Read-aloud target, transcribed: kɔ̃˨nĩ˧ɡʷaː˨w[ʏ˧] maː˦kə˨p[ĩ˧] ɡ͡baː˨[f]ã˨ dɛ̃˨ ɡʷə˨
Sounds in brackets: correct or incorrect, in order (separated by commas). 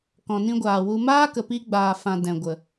incorrect, incorrect, correct